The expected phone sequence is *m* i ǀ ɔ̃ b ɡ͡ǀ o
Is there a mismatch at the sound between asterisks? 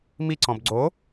no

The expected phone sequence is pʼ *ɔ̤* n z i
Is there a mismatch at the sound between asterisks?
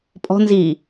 no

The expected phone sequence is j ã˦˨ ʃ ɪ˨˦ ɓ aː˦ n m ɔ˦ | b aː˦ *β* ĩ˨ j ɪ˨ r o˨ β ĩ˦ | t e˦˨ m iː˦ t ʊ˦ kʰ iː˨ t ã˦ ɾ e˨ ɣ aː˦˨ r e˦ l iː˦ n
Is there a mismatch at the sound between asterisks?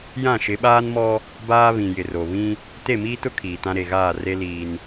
no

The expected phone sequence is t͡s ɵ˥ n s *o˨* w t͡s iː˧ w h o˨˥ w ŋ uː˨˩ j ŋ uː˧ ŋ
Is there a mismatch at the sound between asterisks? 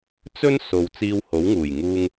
no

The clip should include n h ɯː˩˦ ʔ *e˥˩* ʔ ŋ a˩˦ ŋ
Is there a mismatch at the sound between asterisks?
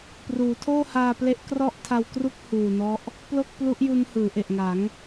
yes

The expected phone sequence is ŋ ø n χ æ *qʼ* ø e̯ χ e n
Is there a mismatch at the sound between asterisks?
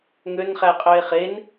no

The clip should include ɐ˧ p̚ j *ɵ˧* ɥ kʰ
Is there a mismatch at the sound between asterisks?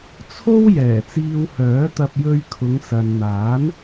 no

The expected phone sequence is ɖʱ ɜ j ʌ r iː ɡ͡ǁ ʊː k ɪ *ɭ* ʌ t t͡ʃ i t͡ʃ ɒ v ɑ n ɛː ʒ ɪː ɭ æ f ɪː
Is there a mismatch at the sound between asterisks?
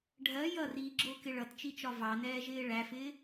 no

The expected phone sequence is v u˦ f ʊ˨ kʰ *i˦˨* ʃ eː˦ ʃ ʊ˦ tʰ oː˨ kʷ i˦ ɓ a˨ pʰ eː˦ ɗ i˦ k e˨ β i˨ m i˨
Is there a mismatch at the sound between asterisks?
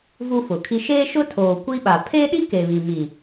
yes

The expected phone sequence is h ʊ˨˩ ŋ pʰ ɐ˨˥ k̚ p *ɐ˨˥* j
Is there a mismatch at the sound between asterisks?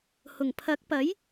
no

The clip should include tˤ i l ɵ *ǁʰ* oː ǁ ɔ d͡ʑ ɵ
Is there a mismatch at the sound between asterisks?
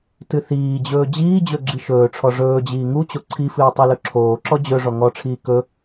no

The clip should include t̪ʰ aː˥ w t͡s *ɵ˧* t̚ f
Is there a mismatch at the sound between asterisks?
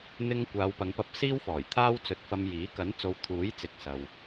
no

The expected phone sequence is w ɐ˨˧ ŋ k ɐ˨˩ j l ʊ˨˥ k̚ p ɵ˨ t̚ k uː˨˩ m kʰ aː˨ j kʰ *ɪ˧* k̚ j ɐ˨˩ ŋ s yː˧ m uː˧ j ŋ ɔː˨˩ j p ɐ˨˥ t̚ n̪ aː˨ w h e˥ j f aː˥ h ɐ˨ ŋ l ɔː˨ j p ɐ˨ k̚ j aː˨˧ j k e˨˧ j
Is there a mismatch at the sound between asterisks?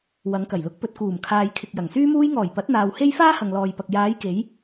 yes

